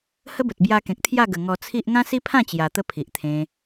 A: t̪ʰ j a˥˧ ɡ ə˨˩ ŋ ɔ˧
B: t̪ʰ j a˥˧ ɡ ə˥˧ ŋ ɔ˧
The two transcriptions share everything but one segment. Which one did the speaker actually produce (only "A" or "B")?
A